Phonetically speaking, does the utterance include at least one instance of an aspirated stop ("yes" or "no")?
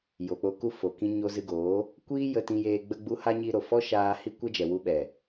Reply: no